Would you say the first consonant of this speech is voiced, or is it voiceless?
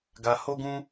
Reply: voiced